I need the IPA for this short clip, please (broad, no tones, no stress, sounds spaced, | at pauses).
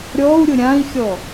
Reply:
ɾʲ ɔ u̯ ɾʲ ʊ ɾʲ ã i̯ xʲ ɔ